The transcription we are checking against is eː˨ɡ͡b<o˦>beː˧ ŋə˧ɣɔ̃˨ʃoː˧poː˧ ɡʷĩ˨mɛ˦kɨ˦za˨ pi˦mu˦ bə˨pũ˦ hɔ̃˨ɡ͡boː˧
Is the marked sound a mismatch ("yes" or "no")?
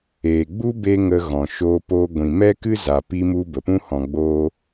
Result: yes